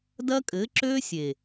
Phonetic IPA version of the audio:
d ɐ˦ kʼ ɘ˨˦ ǁ ø˦ sʲ e˨

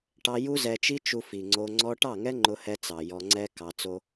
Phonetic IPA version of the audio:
ʈ ɑ˧ j u˦ z ɛ˧ t͡ʃ i˦ t͡ʃ u˧ f i˨ ŋ͡ǀ o˧ ŋ͡ǀ ɔ˦ ʈ ɑ˦˨ ŋ ɛ˦ ŋ͡ǃ ʊ˧ h ɛ˧ t͡s ɑ˨ j ɔ˧ ŋ͡ǀ ɛ˦ k ɑ˧ t͡s o˦

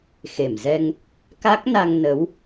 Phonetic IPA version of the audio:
x e˧˩ m z ɛ˧ ŋ | k a˦˥ k̚ n a˧ ŋ n ə˨˦ w

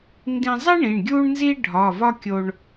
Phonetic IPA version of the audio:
n d ĩ˧ zˤ i˥ ɳ ĩ˩˧˩ ɳ ɡʲ u˥ ɳ n z i˥ ɖʱ ɒ˩˧˩ v ɒ˥ kʲ o˧ ɳ

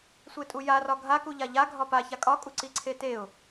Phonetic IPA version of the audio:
sʷ e tʼ u j a r ɒ ɡʱ a k u ʎ a ʎ a ɡʱ ɒ p a ç a kʼ ɒ kʼ u ǀ i ǀʰ e t e ʊ̯

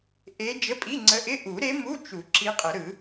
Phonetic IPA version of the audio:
ʔ e˧˥ d͡ʒ ə˧˥˧ pʼ i˧˥˧ ŋ͡ǀ ə˧˥ ʔ ɪ˧˥˧ ʔ u˨˩˦ ɾ e˧˥ m u˧˥˧ t͡ʃ u˨˩˦ ǁ i˧˥ qʼ ə˨˩˦ ɾ ɯ˨˩˦

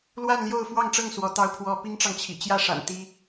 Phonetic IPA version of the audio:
l w a˥˧ n l j o˥˧ ʊ̯ f w ɑ˥˧ ŋ ʈ͡ʂ ɤ˥˩ ŋ s w ɔ˧˥ t̪ ɑ˥ ʊ̯ pʰ w ɔ˥ p i˥ ŋ ʈ͡ʂ ɑ˨ ŋ t͡ɕʰ ḭ˨˩ t͡ɕ j ä˥˩ ʂ a̰˨˩ n t̪ i˥

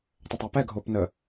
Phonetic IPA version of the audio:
tˤ ə tˤ a p ɛ ɡʱ oː p n ə

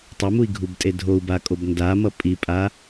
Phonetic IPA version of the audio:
tˤ ʌ m u i̯ ɡʱ u b tʼ e dʱ o u̯ b a kʼ o b n d a m ʌ pʼ i pʼ a

